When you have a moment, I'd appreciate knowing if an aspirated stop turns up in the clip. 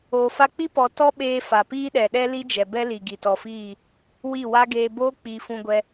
no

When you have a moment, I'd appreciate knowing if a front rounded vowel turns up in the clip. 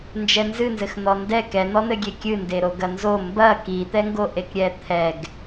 no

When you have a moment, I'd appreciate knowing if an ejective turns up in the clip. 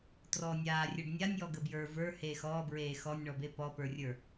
no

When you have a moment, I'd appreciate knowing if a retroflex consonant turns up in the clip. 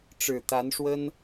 yes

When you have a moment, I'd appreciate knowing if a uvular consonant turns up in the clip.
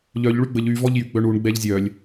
no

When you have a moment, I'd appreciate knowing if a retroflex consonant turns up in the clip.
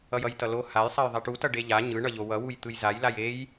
yes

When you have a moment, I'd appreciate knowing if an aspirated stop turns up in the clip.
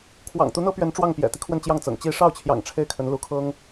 yes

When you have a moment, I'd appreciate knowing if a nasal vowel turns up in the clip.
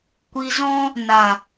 yes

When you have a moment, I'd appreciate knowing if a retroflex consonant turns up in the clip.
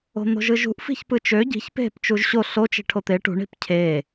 yes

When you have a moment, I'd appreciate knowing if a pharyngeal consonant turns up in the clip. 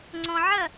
yes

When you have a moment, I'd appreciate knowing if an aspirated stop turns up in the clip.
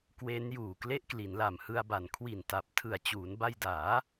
yes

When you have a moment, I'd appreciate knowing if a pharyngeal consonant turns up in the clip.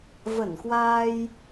no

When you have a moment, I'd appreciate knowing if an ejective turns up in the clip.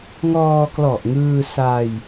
no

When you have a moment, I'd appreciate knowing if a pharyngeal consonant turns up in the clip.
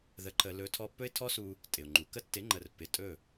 no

